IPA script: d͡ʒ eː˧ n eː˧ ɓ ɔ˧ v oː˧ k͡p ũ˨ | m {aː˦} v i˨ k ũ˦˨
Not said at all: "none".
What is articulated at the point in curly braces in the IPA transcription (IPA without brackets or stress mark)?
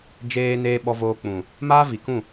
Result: aː˦